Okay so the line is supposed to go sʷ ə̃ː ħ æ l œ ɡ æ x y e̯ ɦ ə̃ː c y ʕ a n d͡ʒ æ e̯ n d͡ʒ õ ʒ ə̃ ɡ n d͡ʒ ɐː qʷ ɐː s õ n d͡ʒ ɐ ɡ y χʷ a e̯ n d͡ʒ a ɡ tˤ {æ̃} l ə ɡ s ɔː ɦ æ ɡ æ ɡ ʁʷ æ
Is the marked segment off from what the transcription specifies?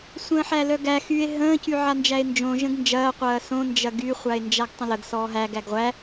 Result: yes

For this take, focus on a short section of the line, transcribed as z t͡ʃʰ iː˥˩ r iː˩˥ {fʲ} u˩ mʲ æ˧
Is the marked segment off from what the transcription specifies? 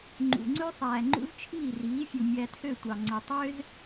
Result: no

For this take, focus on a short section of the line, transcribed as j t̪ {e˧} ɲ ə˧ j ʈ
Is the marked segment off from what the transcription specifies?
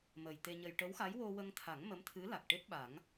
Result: no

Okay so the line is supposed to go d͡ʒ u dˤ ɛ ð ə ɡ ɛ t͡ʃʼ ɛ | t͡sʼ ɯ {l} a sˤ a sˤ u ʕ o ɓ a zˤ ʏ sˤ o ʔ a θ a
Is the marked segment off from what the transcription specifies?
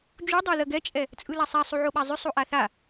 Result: no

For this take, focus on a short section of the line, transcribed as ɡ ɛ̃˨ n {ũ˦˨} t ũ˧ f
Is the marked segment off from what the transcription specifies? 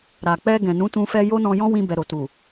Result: yes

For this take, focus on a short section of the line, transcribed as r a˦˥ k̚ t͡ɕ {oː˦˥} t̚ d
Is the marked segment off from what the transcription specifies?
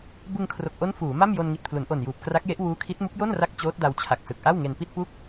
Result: no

